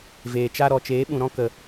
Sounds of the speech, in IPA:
veː˨t͡ʃa˦ ɾɔ˨t͡ʃeː˨˦ɓũ˨ɾɔ̃˦ kə˨

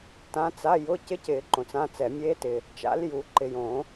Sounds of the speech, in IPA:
tã˧˥t͡sa˧˥˧jʊ˧˥˧ cɪ˧˥cɪː˨˩˦ ǃõ˨t͡sã˧˥˧t͡sɛ˨˩˦ mʲeː˧˥tɪ˨ | t͡ʃa̰˧˥ljuː˨ ǃɪ˨jõ˨˩˦

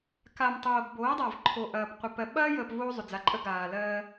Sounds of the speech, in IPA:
ka˨m tˤoː˨ɡboː˨˦dˤa˨v ǃʰo˨ʔɐː˨pqʷə˨ pɜ˨ɓɐː˦jəː˨p voː˦zˤʏ˨d͡za˨˦ǃʼə˦ ɡaː˨lɜː˦

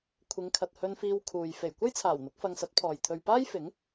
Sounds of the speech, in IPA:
kʷʰɪ˨˧ŋkʰɐ˨t̚hɵ˧nfiː˧w kʰuː˨j fe˨˩jkʷɐ˥jt͡sʰaː˨˩w n̪ʊ˨˥k̚fɐ˧ŋsɐ˨˥t̚pʰɔː˨j t̪ʰɵ˨ɥpaː˥jfɪ˨˥ŋ

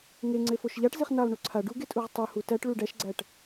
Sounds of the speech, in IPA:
ŋe ŋ͡ǀefoʃʎaʈ ziχnalˠ ɳuǀʰa ɖuɡe tʼuʁtˤu hutæʈɭu ɖæʃɡ͡ǀæʈ

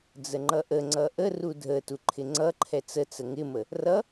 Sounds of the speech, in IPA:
d͡zəŋ͡ǃʌʔə ŋ͡ǀʌʔəru dʱə tuǃʰɪŋ͡ǀʌǃʰɛ t͡sət͡sə ŋɪmə | rʌ

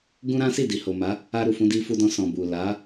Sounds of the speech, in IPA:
ɡũ˦ɾã˦ si˦˨di˨ho˨ma˨˦ | a˧ɾu˨fũ˧ di˧fu˧dɔ̃˧ sɔ̃˨bu˨ la˨˦

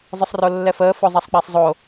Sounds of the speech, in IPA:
zˤɵsˤrolːɛfəː fozˤɛsˤk͡pasˤzˤo

